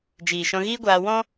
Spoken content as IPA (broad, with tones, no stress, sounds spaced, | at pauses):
d͡ʒ iː˨ ʃ ɔ̃˧ ɣ iː˦ ɡʷ aː˧ w ɔ̃˦